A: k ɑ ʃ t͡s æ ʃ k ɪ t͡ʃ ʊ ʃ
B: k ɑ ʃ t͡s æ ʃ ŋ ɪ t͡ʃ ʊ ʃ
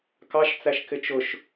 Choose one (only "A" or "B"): A